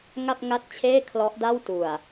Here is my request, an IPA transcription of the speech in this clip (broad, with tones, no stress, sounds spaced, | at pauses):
ŋ a˥˩ p̚ ŋ a˦˥ t̚ t͡ɕʰ eː˥˩ kʰ l ɔ˦˥ ʔ d a˥˩ w t u˨˩ a̯